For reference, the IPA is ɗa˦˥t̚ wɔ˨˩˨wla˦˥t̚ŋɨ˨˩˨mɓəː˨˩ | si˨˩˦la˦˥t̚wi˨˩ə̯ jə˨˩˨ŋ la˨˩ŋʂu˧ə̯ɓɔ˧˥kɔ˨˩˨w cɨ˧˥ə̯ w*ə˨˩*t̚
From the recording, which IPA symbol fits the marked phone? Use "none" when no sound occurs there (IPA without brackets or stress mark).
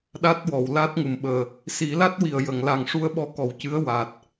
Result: a˨˩